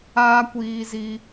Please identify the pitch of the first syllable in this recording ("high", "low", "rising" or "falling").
high